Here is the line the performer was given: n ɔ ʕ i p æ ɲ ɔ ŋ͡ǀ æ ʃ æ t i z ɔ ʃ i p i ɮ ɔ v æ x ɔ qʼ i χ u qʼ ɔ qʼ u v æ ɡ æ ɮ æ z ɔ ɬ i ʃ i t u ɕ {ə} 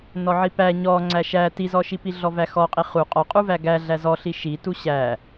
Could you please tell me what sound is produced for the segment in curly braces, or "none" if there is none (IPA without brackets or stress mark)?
æ